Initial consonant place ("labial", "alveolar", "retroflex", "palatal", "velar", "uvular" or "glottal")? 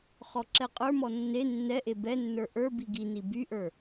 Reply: uvular